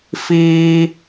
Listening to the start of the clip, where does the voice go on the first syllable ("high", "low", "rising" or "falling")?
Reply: high